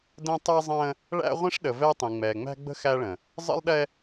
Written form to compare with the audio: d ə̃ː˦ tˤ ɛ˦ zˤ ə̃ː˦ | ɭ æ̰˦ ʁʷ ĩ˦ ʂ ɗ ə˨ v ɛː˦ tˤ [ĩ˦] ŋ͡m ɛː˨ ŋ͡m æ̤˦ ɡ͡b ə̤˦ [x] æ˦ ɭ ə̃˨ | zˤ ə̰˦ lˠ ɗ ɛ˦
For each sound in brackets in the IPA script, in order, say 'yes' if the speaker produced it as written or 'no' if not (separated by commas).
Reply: no, yes